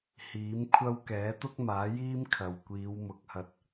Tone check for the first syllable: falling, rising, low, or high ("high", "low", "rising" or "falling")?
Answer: rising